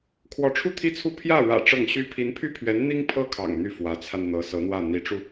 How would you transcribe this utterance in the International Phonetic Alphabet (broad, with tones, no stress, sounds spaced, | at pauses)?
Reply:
kʰ w ɔ˧˥ ʈ͡ʂʰ u˥˧ t̪ʰ i˥˩ t͡sʰ u˥ pʰ j ä˥˩ ɻ ä̰˨˩ ʈ͡ʂ ɤ˥˩ ŋ ɕ y˥ pʰ i˧˥ n pʰ y˥˩ pʰ ɥ ɛ˧˥ n n̪ i˥ ŋ pʰ ɤ˥˩ kʰ ɑ̰˨˩ ŋ n̪ y˥˩ f w ä˧˥ t͡sʰ a˧ n n̪ ɤ˧˥ s ɤ˧˥ n̪ w ä˥˩ n̪ i˧˥ ʈ͡ʂ u˧